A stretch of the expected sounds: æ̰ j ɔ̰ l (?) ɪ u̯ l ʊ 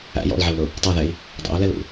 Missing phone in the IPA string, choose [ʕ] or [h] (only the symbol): ʕ